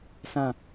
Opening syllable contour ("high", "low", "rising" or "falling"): falling